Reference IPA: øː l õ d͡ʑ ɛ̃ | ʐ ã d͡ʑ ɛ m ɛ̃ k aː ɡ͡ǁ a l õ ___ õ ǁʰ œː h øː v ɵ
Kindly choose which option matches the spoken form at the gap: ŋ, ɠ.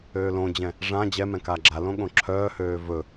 ɠ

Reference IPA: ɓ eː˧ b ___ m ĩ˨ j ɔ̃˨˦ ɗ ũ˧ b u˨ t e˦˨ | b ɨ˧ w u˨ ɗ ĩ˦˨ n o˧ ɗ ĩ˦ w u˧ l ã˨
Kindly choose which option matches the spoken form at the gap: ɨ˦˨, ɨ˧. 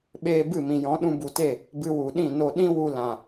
ɨ˦˨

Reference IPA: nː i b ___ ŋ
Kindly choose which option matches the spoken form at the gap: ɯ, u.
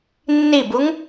u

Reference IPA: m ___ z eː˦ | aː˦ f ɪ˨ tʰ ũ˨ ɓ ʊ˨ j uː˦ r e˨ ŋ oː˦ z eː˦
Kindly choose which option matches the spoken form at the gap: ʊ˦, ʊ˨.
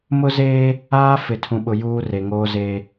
ʊ˦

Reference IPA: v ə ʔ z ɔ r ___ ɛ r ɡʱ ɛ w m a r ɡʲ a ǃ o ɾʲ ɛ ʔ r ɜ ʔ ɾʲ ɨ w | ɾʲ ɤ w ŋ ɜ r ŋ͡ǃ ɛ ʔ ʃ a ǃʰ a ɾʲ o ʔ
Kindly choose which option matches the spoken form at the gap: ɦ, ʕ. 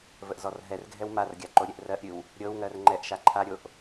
ɦ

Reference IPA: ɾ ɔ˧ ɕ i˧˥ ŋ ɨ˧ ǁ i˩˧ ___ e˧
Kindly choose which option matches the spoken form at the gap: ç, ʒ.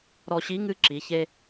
ç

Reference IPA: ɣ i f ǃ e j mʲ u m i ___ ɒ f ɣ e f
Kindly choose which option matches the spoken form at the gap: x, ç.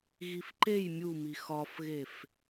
x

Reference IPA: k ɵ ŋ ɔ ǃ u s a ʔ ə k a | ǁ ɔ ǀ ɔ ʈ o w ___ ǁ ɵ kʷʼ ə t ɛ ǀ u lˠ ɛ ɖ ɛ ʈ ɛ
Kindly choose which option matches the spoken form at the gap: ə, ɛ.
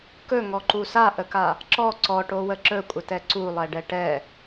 ə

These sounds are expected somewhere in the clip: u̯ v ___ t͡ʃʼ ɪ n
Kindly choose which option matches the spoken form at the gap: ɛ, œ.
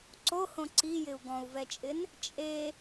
ɛ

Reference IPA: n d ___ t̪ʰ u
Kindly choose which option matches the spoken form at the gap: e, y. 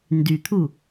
y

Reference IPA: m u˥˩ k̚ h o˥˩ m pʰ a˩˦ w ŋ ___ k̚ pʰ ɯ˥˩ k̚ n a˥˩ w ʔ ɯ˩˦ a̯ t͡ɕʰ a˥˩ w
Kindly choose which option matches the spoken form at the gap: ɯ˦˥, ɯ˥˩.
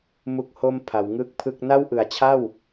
ɯ˥˩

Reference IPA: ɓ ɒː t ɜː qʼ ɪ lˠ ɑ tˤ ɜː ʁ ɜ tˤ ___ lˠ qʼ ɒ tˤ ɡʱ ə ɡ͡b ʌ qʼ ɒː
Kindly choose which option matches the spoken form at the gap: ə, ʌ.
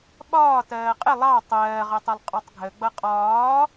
ʌ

